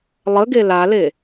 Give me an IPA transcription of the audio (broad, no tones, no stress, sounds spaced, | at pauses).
lˠ ə ɡ e l a l e